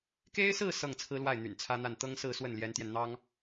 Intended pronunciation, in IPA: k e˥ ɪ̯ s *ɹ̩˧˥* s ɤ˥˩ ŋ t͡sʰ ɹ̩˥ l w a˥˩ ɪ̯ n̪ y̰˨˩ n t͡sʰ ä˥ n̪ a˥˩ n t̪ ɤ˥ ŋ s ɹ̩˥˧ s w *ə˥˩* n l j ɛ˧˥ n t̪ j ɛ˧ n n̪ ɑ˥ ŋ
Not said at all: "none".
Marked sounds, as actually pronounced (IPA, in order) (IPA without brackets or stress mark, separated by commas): ɹ̩˥˧, ə˥˩